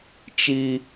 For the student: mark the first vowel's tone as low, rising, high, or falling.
high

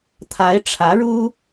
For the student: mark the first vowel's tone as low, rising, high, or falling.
rising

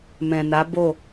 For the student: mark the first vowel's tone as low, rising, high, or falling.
low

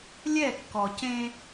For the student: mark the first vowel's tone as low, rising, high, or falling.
falling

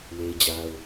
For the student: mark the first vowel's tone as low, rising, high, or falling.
high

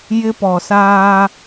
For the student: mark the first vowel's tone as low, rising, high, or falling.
high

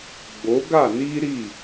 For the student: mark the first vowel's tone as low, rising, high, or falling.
rising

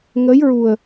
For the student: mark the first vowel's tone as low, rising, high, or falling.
rising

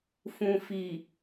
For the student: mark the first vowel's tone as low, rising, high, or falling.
low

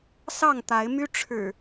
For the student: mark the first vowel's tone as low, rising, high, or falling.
falling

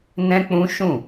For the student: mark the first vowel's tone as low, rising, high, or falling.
high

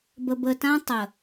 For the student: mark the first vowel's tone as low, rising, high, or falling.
low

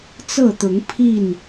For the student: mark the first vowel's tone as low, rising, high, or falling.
falling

